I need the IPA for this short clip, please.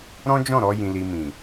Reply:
ɾ ɔ̃˦ d͡ʒ ɔ̃˦˨ ɾ ɔ˧ j ĩ˧ l i˧ m ĩ˨

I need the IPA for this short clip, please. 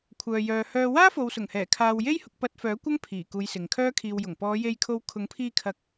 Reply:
kʷʰ œː˨ j œː˨ h œː˧ w aː˥ f o˨ w s ʊ˨˩ ŋ h ɛː˨˩ kʰ aː˧ w j e˥ j h ʊ˧ k̚ p ɐ˧ t̚ f œː˨˥ kʷ ɐ˥ ŋ pʰ iː˨˩ k uː˨˧ j s ɪ˨ ŋ kʰ œː˥ kʰ iː˧ w j ʊ˨˩ ŋ p ɔː˨˧ j e˧ j kʰ o˧ w kʰ ʊ˨˥ ŋ pʰ iː˧ kʰ ɐ˨ k̚

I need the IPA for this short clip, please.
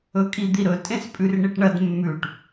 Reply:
ɵ kʼ i d̪ i ɾ ɵ tʼ ẽ s pʼ ʉ r ɳ i ʈ ɳ ɐ d mː ʉ ʈ

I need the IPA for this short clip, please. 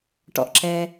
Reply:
ʈ ɔ̰˩ ʔ ǁ ɛ˩

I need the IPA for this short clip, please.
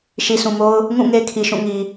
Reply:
ʃ i˨ sʰ ũ˨ m o˦ ʊ̯ | ŋ ũ˦˨ ŋ e˦ kʰ i˨ ʃ ũ˦˨ ŋ i˨

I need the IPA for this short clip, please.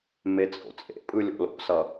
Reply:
m e t͡sʼ o̰ t͡sʼ ḛ pʼ ɯ lʲ o̰ l o̰ s ʌ

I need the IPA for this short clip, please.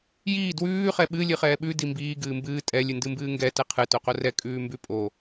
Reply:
j iː d w ʉː χ ɛ ɓ ɨ lʲ ɨ χ ɛː ɓ ʉ d i m b iː ɡ ɨː m b ɨː tʼ ɛ lʲ ɨ n d ɨ m b ɨː ŋ ɡ ɛ t ɛ qʰ ɨ t o q o r ɛ kʼ ʉː m b ʉ pʼ o

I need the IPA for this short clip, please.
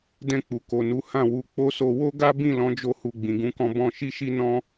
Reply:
d ɛ̃˧ k͡p u˨ k o˨ n u˨˦ h ã˦˨ w u˧ k͡p o˦ s o˧ w o˦ ɡ a˦ b ĩ˦˨ l ɔ̃˨˦ d͡ʒ o˧ h u˨ ɡ͡b ĩ˨ ɡ ũ˨˦ k ɔ̃˧ b ɔ̃˧ ʃ i˦ ʃ i˦ n ɔ̃˦

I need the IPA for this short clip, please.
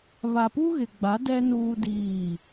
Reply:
β a˨ p u˦ ɣ ɪ˨ ɡ͡b a˨˦ d ɛ˦ n uː˦ d iː˦˨

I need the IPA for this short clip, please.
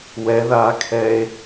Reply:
w ɛ ð aː kʰ ɛː e̯

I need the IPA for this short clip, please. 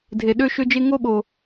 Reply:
dʱ e˨ ɗ ø˦ ʃ ø˦ d͡ʒ e˦ ŋ o˦ ɓ o˨

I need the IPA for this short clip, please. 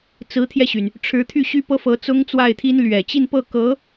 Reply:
t͡s ɹ̩˧˥ t̪ʰ j ɛ˧ ɕ y˩ n | ʈ͡ʂʰ ɻ̩˧˥ t̪ʰ y˥˩ ɕ y˥ p ɤ˥ f ɤ˧˥ t͡s ʊ˥ ŋ t͡s w a˥˩ ɪ̯ t̪ʰ i˥ n l ɥ ɛ˨˩ t͡ɕ i˥˧ n p ɤ˥˩ k ɤ˧˥

